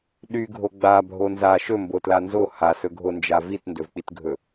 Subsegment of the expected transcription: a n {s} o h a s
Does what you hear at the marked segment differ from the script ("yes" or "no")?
yes